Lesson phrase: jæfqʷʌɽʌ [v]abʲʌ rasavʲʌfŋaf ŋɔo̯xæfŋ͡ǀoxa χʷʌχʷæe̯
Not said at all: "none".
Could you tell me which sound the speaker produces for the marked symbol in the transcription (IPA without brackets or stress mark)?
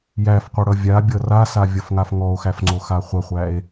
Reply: vʲ